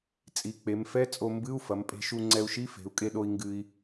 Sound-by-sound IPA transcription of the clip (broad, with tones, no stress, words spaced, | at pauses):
t͡sʼi˩˧k͡pe˩˧m fɛ˧˥˧t͡sʼo˧ mbɨ˧˥˧u̯fɐ˩˧mpʼe̤˧ ʃu˧ŋ͡ǀɛ˧u̯ʃi˧˥˧ fe̤˩˧u̯kʼe˧ɗo˧i̯ ŋɡɨ˧i̯